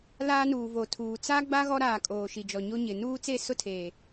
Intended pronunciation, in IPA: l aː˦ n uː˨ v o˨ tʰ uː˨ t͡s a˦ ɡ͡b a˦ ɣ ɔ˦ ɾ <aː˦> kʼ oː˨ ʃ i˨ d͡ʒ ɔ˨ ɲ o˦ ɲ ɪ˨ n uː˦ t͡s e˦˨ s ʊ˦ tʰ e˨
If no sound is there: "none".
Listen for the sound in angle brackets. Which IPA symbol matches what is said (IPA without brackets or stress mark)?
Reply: aː˨